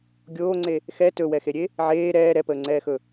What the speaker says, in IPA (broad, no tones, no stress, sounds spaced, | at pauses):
ɡʲ oː ŋ͡ǀ e | x ɛ t ɵ w ɛ x e ɾʲ e | ʕ eː ɾ ɛː ɾ ɛ p əː ŋ͡ǀ ɛː x ɵ